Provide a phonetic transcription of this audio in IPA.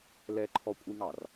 l ɛ ǃʰ ɔ kʷʼ i ŋ ɑ r

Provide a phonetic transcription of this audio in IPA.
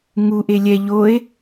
ŋ u ʔ e lʲ ɛ ʎ o e̯

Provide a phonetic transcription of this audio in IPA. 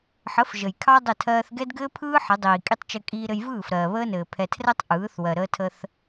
ħ ə˨˦ f ʒ ə˨ j kʰ ɑ˦ dˤ ə˦˨ tʰ ɜː˦ θ ɡ ɛ˦ d ɡ ɘː˦ pʰ ɯː˦ ħ ə˨˦ dˤ iː˨ kʼ i˦ tˤ t͡ʃ ɘ˦ kʼ iː˦ ɾ ɘ˦ j v ɯː˦˨ f ɾ ɜː˨ β əː˦ n ɘː˨ pʰ ɛ˨ tʰ r ɛ˦ tˤ ʔ ɯː˨˦ θ w ɜ˨ ɾ əː˦ tʰ ə˦ θ

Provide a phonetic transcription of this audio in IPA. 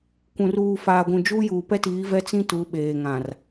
kʷ ũ˨ r uː˨ f aː˨ ɡʷ ũ˨ d͡ʒ uː˦ j uː˨ p ɛ˦ t iː˨˦ v ɛ˦ t͡s ĩ˦ t u˨˦ ɓ eː˨ ŋ ã˨ r

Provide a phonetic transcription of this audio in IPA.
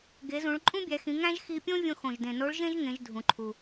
ɡ e˩˧ z ũ˩˧ ɭ ǃʼ ũ˥ bʲ æ˩˧ x ĩ˩˧ ŋ æ̃˥ ʒ x i˧ pʲ õ˥ vʲ õ˧ x õ˩ ʒ d ẽ˩ n o˧˥ ɭ ʒ ẽ˥ ʒ ŋ ẽ˩˧ ʒ dʱ ũ˩ ǃʰ u˩

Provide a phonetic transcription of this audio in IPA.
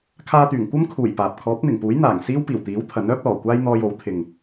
kʰ aː˧ t̪ yː˨˩ ŋ kʷ ɐ˥ m kʰ uː˨˩ j p aː˨ p̚ kʰ ɔː˨˥ p̚ n̪ ɪ˨˩ ŋ p uː˨˥ j n̪ aː˨˩ ŋ s iː˥ w p iː˨˩ w t̪ iː˨˥ w t̪ʰ ɐ˨˥ n œː˥ p̚ l ɔː˨˩ kʷ aː˥ j n̪ ɔː˧ j o˨˥ w t̪ʰ ɪ˨ ŋ

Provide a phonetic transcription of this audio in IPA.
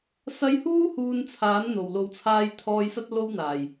s ɐ˧ j h uː˥ h uː˧ n t͡sʰ aː˨˥ n n̪ o˨˩ w l o˨ w t͡sʰ aː˧ j t̪ʰ ɔː˧ j s ɐ˥ t̚ l o˥ w n̪ aː˨˩ j

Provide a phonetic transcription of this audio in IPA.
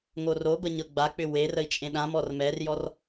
ŋ o r o b ə ɲ ɤ ɡ͡b a k͡p ʏ w e r ə i̯ t͡ʃʼ ẽ ɗ ã m ɔ r m ɛ r j ɔ r

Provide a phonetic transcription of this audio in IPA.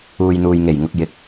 uː˨ j n̪ uː˨ j ŋ e˨˩ j ŋ ʊ˧ k̚ j ɪ˧ k̚

